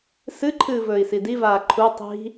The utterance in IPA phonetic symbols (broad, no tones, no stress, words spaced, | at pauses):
sɨǃʰɨː vɵːi̯sidivaː ǃʰu tˤi̤